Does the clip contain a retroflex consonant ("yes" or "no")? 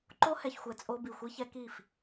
no